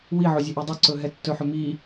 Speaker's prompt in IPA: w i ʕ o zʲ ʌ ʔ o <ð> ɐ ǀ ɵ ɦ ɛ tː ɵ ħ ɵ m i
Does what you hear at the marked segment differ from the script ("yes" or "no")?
yes